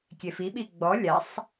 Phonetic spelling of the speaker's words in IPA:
kʲ e f i ɓ i ɡ͡b ɔ lʲ a sˤ

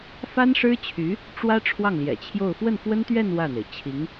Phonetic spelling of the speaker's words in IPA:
f a˥ n ʂ ɻ̩˥ t͡ɕʰ y˧˥ | ʈ͡ʂ w ä˥ ʈ͡ʂʰ w ɑ˥˩ ŋ l j ɛ̰˨˩ t͡ɕʰ j o˥˧ ʊ̯ f w ə˥˩ n f w ə˥ n t̪ ɥ ɛ˥˧ n w ä˥˩ n̪ e˩ ɪ̯ t͡ɕʰ i˧˥ ŋ

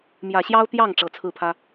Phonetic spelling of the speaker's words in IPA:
m j ä˨˩ ɕ j ɑ˥ ʊ̯ t̪ j ɑ˥˩ ŋ ʈ͡ʂ ɤ˨˩ t͡sʰ ɹ̩˥˩ pʰ ä˥

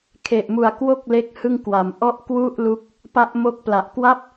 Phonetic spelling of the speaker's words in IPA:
kʰ e˨˩ ʔ m u˨˩ a̯ k w o˥˩ k̚ l e˥˩ k̚ h ɯ˥˩ ŋ k w a˨˩ m ʔ ɔ˥˩ ʔ k w u˥˩ ʔ l u˦˥ k̚ | p a˦˥ ʔ m o˦˥ k̚ p l a˨˩ ʔ k w a˥˩ p̚

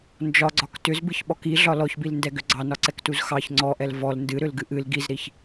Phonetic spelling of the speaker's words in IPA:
n d͡ʒ ɒ ɡ͡ǀ ɒ k t ʏ z b ɨ ç ɓ ɔ k i ɮ ɒ l ɔ ç b i l n d ɛ ɡ ʏ ɡ͡ǀ ɑ n ɒ ǀ ɛ k t u z x ɑ ç ŋ͡ǀ ɔ ʔ ɛ l v ɔ l n d ɨ ɾ ʏ l ɡ ɨ ʔ ɨ l ɡ i z ɾ i ç

